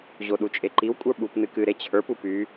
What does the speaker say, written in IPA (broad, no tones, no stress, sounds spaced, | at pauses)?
ʑ o ɗ u t͡ʃʼ e ǃ i w kʷʼ ə˞ ɓ u p n ɨ k ɨ ɾ e t͡ɕʰ ə˞ p u p y